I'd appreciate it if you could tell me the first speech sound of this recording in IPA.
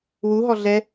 w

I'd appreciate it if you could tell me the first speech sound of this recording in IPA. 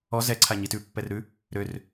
ɔ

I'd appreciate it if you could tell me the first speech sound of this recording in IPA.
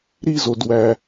ɾ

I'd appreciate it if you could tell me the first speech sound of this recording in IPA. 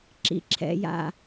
ǁ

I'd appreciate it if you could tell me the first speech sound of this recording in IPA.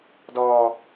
d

